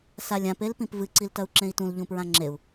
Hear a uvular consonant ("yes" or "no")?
no